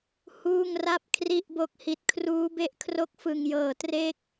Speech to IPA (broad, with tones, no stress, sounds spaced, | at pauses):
h uː˥˩ ŋ r a˥˩ p̚ kʰ r i˥˩ ʔ b o˦˥ k̚ h i˨˩ t̚ kʰ r uː˦˥ b e˥˩ ʔ kʰ r o˥˩ k̚ f ɯ˨˩ ŋ j ɤː˨˩ t r e˦˥ k̚